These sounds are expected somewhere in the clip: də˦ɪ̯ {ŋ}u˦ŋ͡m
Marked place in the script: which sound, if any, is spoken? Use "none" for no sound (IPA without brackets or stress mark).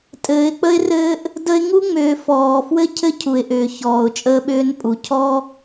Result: ŋ